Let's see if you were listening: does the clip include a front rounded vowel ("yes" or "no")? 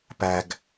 no